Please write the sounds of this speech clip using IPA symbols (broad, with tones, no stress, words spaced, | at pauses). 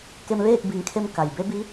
ke˧mʋeː˥˨k̚ bi˩˧ŋkʰe˧m ka˩jbe˧˥bi˧˥